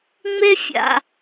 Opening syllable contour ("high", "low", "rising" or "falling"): high